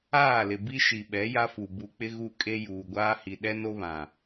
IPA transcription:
aː˦˨ l ɪ˨ b i˦ ʃ i˨ ɓ ɛ˨˦ j a˦ f u˨ b u˨ k͡p ɪ˦ ɣ u˦ kʼ e˦ j uː˨ ɡʷ aː˦ h i˨ ɗ ɛ˦ n o˦ β ã˨

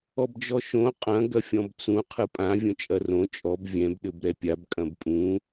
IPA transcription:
ɔ b d͡ʒ ɔ ʃ õ qʼ ɐ̃ ɡ ɐ fʲ ɔ̃ b t͡s ũ qʰ ɨ pʼ ã vʲ õ t͡ʃʼ ɐ r õ t͡ʃʼ ɔ b vʲ ɛ̃ b ɗ ɘ b ɾ ɛ pʲ a b kʼ ɐ̃ b pʼ ũ

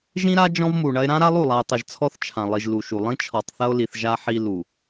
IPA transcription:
ʒ ĩ˦ ɾ a˦ d͡ʒ ɔ̃˦ v m u˨ ɳ ɐ˦ e̯ ɾ ã˦ ɾ a˦ lˠ u˦˨ lˠ a˨ e̯ tˤ ɘ˨ ʒ t͡sʰ ɔ˦ θ t͡ʃʰ ã˨ lˠ i˨ ʒ l u˨ ʃ u˨ lˠ ĩ˦ t͡ʃʰ ɔ˨ tˤ θ ɐ˦ o̯ l i˨ θ ʒ a˦ ħ i˦ l u˨

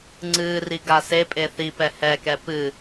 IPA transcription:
ŋ͡ǀ ɨː r i ɡ a s e pʼ e θ i p ɛ h ɛ k ɛ p ɨː

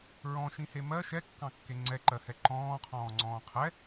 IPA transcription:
ɹ ɔ̃ ʃ ĩ h e m ɜ ʃ ɛ kː ɑ̃ kː e ŋ͡ǀ ɛ ǃ ɜ h ɛ ǃ ɔ̃ː qʰ ɔ̃ː ŋ͡ǀ ɔ̃ː qʰ ɛ

